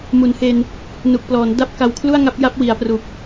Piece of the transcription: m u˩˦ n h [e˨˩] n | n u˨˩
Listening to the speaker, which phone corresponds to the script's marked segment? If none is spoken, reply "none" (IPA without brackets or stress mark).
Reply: e˧